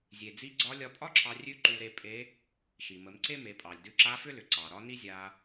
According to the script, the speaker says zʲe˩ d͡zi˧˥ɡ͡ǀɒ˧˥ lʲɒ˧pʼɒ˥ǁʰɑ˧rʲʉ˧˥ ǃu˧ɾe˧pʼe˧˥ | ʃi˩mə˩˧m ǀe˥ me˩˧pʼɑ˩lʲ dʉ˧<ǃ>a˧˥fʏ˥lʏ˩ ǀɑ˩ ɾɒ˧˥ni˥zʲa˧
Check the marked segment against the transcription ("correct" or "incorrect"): incorrect